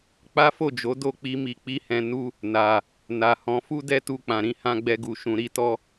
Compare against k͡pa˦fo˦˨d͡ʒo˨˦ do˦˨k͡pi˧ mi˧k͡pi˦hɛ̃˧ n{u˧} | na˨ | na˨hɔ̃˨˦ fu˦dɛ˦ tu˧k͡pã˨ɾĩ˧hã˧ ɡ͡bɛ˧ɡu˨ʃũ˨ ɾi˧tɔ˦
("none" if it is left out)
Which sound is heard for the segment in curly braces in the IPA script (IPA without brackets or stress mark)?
u˦